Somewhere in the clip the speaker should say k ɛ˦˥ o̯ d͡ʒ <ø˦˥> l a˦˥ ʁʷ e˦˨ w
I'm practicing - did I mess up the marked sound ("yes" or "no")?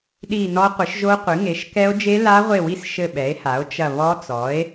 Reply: yes